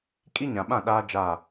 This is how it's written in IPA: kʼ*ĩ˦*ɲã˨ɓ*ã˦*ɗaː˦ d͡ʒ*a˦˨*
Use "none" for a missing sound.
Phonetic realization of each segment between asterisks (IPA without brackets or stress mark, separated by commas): i˦, ã˦˨, a˦˨